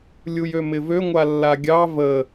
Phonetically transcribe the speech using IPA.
lʲ u j ø m ɪ v ø ŋʷ a lː a ɡʲ ɑ v ə

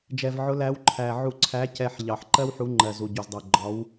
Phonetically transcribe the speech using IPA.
d͡ʒ ɛ˨˩ v ʕ ʊ˨˦ l æ˨˦ w ǃʰ æ˨˩ ʕ u˧˩˧ ǀʰ æ˨˦ c ɛ˨˩ ħ ʎ ɑ˨˩ ħ ǃ ɜ˦ w ħ u˨˦ ŋ͡ǃ ɜ˨˩ z u˨˩ ɟ u˨˩ z dˤ ɛ˨˩ ɡ͡ǃ ɒ˨˦ w

